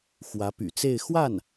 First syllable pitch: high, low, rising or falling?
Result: rising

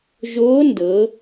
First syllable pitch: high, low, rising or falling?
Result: rising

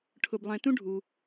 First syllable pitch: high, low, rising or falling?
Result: high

